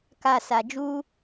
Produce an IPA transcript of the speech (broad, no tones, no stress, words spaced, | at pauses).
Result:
ka sad͡ʒu